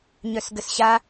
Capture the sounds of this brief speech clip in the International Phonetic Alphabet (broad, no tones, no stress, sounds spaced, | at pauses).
ɲ œ s ɡ ə s ɕ a